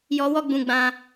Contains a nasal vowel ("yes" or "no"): yes